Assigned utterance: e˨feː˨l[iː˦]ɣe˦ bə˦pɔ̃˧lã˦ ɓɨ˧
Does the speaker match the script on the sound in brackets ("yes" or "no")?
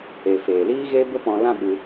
yes